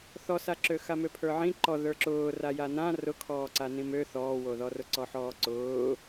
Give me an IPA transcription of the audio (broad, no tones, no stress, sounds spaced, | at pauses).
θ ɔ s a ǁ ø x a m ø pʰ ə˞ ʕ ĩ ǃ ɔ ð ə˞ ǁ ʊː r a j a n ã r ʊ kʰ ɔː ǀ a n ĩ m ø θ ɔː w o ð ɔ r ʊ ǀ ɔ ħ ɔː ǀ ʊː